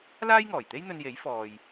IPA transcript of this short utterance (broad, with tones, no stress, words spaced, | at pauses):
laː˥jŋɔː˨˩jt̪e˥j n̪ɵ˧nje˨˥j fɔː˨j